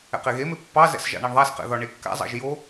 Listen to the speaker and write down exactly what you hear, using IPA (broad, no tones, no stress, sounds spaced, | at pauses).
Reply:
ɛ̰ q e ɣ e m e pː ɑ z ɛ̰ s ʒ ɑ̰ ɳ a ɳ ðˤ a s q ɛ̰ ð ɒ ɳ e kː a̰ zˤ ɑ̰ ʒ j o